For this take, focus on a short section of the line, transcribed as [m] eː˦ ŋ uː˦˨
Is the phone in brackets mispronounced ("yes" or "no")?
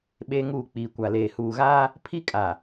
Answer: yes